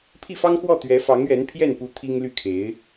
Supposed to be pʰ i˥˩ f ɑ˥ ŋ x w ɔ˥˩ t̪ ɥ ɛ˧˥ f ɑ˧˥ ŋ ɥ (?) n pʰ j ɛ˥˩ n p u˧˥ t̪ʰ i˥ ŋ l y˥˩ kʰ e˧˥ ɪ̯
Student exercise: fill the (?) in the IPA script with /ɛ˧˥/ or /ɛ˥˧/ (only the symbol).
ɛ˧˥